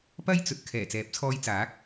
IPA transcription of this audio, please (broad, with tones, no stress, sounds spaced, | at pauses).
p ɐ˥ j t͡s ɵ˨ t̚ kʰ ɛː˨˩ t͡s ɛː˨˥ p̚ t͡sʰ ɔː˧ j t͡s aː˨˥ k̚